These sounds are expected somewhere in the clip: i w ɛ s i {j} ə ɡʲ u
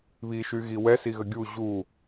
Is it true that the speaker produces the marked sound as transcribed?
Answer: no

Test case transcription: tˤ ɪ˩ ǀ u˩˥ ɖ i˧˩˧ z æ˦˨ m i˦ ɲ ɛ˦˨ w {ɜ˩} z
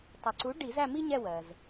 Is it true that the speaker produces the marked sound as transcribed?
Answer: yes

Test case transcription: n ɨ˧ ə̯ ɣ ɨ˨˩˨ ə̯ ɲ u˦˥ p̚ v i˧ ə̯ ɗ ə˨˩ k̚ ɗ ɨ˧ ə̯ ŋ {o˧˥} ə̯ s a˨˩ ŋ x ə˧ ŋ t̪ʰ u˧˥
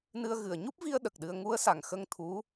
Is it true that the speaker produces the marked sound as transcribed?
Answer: no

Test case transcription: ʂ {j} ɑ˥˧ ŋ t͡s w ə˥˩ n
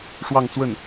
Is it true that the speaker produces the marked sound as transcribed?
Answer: no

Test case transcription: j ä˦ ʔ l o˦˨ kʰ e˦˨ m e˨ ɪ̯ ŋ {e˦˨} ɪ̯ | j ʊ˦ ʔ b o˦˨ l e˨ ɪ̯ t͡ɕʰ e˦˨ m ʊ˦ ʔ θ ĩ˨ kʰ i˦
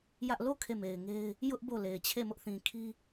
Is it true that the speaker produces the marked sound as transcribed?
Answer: no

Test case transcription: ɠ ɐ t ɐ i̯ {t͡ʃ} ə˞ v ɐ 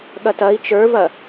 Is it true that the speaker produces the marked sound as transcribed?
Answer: yes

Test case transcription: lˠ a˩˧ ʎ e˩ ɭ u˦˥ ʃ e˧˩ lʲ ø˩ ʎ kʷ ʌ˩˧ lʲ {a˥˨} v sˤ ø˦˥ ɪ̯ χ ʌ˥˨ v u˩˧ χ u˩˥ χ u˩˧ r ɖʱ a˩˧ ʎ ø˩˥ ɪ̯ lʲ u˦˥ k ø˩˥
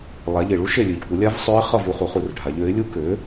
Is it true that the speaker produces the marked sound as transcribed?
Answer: no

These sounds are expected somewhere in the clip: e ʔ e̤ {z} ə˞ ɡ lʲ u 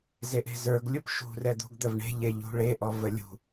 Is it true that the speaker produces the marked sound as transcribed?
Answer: yes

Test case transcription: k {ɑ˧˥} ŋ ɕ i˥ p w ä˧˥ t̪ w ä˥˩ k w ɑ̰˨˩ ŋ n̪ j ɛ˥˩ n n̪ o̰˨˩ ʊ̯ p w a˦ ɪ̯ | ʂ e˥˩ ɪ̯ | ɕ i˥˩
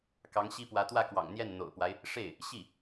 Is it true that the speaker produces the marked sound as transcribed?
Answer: yes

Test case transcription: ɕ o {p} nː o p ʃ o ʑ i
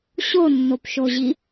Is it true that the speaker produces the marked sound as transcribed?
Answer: no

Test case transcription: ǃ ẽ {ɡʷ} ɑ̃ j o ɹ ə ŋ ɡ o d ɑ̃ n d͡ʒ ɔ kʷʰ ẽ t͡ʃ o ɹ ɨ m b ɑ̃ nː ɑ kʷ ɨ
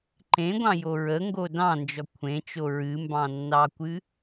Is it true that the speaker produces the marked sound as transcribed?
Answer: yes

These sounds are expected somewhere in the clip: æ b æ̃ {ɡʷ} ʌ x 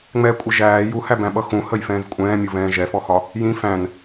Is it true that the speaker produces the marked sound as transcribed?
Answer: no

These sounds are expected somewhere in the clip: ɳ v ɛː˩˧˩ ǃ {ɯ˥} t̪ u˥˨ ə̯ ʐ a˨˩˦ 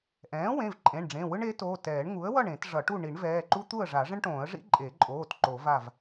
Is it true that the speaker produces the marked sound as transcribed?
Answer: no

